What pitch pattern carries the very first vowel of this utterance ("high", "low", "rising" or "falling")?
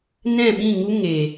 falling